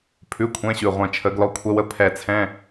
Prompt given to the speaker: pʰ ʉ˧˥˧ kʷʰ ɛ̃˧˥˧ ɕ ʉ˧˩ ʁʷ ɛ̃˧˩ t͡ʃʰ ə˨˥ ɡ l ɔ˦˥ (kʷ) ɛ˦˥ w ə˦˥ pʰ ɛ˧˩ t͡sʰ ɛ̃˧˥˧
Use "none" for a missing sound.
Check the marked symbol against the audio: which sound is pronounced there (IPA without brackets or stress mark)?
kʷʰ